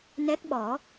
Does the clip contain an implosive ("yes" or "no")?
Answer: yes